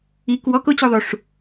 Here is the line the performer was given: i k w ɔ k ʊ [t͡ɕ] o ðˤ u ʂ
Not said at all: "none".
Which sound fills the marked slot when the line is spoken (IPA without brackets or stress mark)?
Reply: t͡ɕ